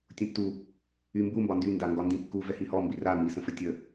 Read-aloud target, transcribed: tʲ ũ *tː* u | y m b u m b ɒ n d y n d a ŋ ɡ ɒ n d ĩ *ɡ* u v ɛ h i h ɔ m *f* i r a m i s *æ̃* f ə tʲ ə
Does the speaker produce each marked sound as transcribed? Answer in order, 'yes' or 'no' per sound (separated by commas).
yes, no, no, no